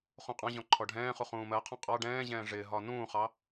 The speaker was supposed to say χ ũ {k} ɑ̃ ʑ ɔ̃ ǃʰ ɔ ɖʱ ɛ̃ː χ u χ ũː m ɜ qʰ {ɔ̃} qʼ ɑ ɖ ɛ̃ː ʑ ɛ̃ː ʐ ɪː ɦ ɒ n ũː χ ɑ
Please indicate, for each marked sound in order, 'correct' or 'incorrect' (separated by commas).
incorrect, correct